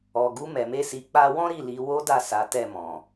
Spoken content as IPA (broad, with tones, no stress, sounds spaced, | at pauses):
ɔ˨ ɡ u˧ m ɛ˨ m e˧ s i˨ k͡p a˧ w ɔ̃˦ ɾ i˦˨ l i˧ w o˦ d a˦˨ s a˨˦ t ɛ˦˨ m ɔ̃˨